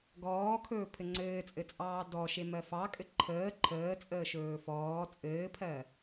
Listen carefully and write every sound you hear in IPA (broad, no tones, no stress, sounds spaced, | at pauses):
ɡ ɔː kʰ ɵː pʰ ɘ ŋ͡ǀ ɘː t͡sʼ ɘ t͡sʼ ɑː d ɔ ʃ e m ɜ f ɑ kʼ ɘ ǃʰ əː ǃʰ əː t͡sʼ əː ʃ ɵː f ɔː t͡sʼ ɘː pʰ ɜ